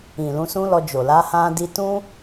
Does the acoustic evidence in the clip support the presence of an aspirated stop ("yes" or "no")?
no